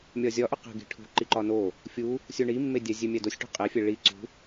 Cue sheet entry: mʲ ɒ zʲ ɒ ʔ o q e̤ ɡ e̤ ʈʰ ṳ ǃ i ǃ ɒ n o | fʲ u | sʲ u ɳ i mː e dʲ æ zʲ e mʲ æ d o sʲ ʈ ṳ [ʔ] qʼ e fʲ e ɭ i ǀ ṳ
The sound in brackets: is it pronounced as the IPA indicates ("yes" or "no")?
no